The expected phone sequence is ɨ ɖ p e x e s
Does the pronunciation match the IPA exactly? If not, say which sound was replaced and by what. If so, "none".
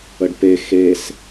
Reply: ɨ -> ə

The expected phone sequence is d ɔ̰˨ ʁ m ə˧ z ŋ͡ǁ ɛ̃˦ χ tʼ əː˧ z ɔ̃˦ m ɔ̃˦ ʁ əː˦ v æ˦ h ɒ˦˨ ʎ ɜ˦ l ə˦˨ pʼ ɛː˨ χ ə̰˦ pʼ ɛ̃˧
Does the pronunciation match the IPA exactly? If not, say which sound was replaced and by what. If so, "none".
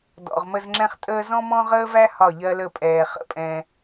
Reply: none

